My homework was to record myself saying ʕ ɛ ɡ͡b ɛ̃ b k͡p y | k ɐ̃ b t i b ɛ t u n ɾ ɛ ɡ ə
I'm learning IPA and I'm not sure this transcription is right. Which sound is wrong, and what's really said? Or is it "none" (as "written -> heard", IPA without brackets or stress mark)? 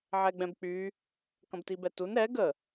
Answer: none